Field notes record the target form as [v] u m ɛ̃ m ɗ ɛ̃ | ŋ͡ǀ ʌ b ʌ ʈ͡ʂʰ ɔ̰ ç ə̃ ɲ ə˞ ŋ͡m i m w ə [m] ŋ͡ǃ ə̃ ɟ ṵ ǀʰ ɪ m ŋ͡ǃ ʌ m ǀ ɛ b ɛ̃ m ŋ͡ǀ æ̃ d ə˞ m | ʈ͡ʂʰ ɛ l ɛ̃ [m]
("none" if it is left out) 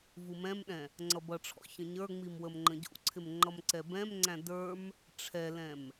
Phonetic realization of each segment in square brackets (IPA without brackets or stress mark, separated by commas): v, m, m